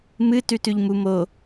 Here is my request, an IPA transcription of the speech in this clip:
mɨ tʉtʉʎmu mo

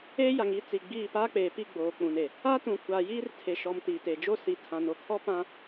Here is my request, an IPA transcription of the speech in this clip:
eː˦ja˨ŋi˦ t͡si˨ɡ͡biː˦˨ paː˦k͡peː˨pi˦˨ ɡ͡boː˨k͡pũ˨ne˨ | a˦tũ˨kʷa˨ jiː˦rtʰe˨ʃɔ˨m tiː˨teː˨ d͡ʒo˦˨ si˨tʰã˨ no˨kʰɔ˦pã˦

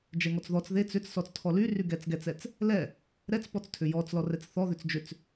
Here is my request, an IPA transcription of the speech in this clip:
d͡ʒɛŋɔt͡sðɔt͡s ðet͡s ʏt͡ssɔt͡s tʰɔlyry ɡɛt͡sɡɛt͡sɛt͡s | lɛ | ɾɛt͡spɔt͡stʰʏ jɔt͡s lɔrɛt͡sθɔðʏt͡s d͡ʒʏt͡s

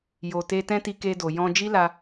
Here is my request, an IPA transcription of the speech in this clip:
jo˨te˧ tɛ̃˦ti˧ke˧do˨ jɔ̃˧d͡ʒi˦la˧

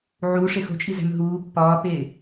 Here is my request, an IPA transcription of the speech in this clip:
ʕu ʂexo̤t͡ʃʼizæ̤m ɦuː pːɒːpe

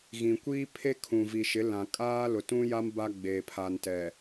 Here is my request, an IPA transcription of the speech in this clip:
ɣĩ˨kʷiː˦pʰe˦ kʰũ˨vi˨ʃɪ˨˦ lã˨kʼaː˦ lʊ˨tũ˦ja˦m ba˦ɡ͡beː˨pʰa˨ntɛ˨

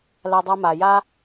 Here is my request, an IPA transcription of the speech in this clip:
la˦dˤa˥ma˨ ja˥

